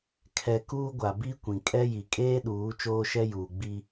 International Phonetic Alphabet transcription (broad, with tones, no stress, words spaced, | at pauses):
kʰɛ˦ kuː˦ɡʷa˨ bi˦kʷĩ˨ kʼɛ˦ji˨ kʼeː˦ɗuː˨˦ t͡ʃoː˦ʃɛ˦juː˨ ɡ͡bi˦